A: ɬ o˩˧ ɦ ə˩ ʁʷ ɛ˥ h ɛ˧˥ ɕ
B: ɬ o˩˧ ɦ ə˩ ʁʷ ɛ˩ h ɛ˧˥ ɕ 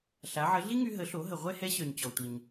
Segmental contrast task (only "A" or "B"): A